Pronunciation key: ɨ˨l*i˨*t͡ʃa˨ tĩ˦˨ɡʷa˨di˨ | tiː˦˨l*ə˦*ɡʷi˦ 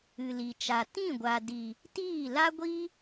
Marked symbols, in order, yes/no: yes, no

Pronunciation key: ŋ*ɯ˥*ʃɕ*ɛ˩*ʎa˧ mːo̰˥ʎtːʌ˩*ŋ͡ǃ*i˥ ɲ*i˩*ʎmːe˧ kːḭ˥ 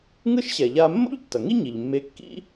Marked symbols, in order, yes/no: yes, yes, no, yes

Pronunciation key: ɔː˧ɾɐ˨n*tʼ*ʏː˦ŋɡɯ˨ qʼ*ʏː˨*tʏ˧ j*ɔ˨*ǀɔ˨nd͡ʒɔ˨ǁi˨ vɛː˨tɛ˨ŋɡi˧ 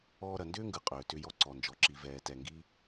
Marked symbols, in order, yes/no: no, yes, no

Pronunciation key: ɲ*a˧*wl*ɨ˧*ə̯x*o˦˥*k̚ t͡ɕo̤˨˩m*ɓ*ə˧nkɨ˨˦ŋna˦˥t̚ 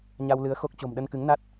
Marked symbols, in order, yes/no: yes, no, yes, no

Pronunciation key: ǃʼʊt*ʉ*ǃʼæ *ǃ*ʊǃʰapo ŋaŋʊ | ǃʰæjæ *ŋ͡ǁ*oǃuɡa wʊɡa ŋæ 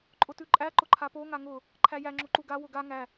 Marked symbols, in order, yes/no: yes, yes, yes

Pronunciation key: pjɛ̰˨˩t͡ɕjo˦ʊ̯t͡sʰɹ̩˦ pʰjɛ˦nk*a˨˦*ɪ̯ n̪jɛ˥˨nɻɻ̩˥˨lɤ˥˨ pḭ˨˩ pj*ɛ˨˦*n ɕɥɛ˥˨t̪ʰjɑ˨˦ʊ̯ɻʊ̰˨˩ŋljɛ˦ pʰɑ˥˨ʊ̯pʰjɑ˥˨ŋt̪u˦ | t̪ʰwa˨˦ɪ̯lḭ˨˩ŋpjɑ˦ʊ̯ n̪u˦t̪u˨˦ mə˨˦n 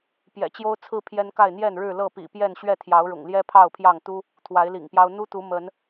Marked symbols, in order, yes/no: no, no

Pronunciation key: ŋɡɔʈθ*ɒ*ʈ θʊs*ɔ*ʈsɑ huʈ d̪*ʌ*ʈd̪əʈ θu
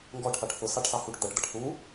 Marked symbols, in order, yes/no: no, no, yes

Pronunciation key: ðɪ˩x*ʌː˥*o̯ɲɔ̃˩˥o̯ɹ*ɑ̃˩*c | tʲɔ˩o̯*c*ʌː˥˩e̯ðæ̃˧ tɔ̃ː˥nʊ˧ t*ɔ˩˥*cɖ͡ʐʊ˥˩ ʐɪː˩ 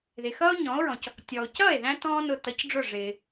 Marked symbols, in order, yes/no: yes, no, yes, no

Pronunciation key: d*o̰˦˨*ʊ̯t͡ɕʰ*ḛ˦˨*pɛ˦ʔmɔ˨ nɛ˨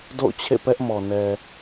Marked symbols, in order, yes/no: yes, yes

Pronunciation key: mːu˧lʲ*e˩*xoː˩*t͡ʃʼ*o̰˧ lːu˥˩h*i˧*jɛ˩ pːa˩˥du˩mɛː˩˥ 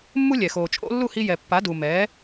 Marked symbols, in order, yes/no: no, yes, yes

